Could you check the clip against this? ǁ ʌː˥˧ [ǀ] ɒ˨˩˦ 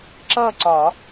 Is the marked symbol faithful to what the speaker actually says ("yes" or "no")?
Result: yes